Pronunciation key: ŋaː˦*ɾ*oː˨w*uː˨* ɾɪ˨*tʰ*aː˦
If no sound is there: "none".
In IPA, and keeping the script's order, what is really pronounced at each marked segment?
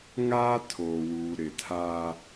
tʰ, uː˨, tʰ

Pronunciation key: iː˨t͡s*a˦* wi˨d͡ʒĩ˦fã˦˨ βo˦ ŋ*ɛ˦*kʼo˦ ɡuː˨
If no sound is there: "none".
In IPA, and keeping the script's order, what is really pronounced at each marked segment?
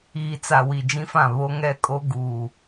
a˨, ɛ˦

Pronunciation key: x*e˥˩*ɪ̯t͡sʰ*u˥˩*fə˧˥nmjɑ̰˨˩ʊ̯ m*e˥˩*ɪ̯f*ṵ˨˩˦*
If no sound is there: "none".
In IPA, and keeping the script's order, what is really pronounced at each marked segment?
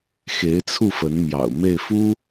e˧˥, u˥˩, e˥˩, u˥

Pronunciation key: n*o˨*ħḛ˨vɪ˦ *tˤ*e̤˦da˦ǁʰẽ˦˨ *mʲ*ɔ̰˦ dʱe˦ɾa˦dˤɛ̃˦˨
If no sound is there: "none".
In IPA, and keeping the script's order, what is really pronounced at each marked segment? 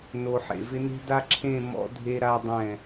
o˨, n, m

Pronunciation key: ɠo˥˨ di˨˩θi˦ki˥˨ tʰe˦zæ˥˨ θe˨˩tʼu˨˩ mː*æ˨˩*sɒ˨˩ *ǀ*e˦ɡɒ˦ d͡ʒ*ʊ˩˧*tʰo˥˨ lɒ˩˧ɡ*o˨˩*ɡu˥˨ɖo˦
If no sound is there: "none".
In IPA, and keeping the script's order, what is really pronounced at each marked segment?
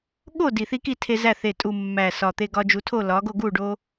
æ˨˩, t̪, u˩˧, o˥˨

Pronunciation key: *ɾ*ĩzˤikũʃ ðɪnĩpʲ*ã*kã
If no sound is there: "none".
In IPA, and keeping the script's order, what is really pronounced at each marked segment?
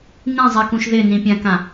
n, ã

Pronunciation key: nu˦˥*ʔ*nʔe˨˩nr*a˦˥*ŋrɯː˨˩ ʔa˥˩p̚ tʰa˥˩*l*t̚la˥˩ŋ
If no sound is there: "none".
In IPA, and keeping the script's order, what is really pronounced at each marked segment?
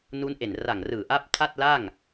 none, a˨˩, none

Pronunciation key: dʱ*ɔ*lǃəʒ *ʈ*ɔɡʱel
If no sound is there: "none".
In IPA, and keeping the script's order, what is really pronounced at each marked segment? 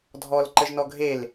ɔ, n

